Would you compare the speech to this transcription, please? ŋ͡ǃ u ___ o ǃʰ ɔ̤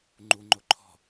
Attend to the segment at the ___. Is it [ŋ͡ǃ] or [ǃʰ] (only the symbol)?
ŋ͡ǃ